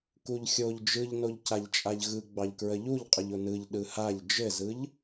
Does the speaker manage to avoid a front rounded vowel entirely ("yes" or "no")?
yes